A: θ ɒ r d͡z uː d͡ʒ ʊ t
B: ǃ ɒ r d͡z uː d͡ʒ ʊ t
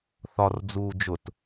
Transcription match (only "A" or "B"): A